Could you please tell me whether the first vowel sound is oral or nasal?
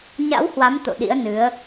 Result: oral